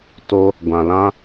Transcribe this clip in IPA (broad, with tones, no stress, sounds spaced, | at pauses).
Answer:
t o˦ | ɡʷ ã˨ l ã˦